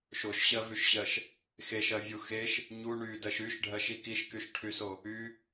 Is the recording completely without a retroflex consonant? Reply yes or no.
no